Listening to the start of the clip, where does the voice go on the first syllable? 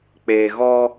low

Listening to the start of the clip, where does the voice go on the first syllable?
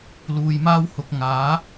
low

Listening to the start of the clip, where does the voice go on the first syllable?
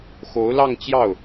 rising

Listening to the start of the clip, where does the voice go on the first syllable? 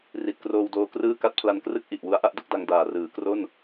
low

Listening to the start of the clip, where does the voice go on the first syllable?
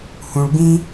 low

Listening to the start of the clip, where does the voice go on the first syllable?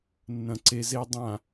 low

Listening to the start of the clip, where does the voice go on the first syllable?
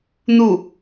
falling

